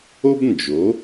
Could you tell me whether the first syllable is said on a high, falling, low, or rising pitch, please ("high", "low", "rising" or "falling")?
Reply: high